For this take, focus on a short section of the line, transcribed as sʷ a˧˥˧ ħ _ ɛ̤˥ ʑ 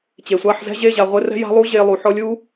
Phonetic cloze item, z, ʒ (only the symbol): z